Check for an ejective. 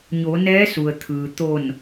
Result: absent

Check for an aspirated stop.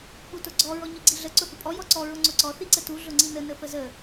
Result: absent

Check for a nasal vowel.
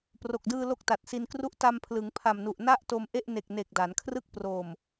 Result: absent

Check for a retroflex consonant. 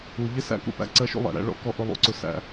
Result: present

